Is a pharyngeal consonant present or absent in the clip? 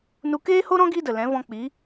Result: absent